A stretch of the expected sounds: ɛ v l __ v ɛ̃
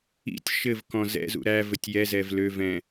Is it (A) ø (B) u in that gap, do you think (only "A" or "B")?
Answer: A